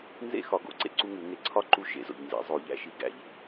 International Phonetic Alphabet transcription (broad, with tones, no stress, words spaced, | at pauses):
nzḛ˥˧xɒ˨˩˦ɡo̰˨˩˦ ǀḛ˨ǀu˥˧ŋu˨˩˦ ŋe˨˥ǀʰɒ˦˥ ǃu˦˥ʃḛ˨zo̰˨ʎnzḭ˨˥ zˤo˨˩˦ʎæ̰˦˥ʃi˨˥ɡæ̰˨˩˦ʎ